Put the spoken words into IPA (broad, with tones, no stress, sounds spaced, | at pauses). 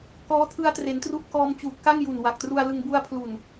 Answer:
k ɔː˦˥ tʰ ɯ˦˥ a̯ t r e˩˦ n t r u˦˥ ʔ k ɔː˧ m t͡ɕ uː˨˩ t̚ k a˥˩ ŋ j u˨˩ n w a˨˩ k̚ t r u˧ a̯ l ɯ˧ ŋ b u˦˥ a̯ pʰ l u˨˩ n